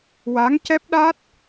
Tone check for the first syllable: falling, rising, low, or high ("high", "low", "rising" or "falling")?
rising